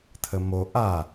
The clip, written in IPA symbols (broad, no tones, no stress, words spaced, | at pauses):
t̪ʰəmo ʔa